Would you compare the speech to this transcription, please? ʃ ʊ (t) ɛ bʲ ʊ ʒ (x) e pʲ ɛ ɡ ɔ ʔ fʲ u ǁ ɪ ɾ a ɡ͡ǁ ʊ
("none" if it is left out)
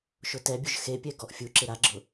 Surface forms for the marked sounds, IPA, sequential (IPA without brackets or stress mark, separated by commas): t, x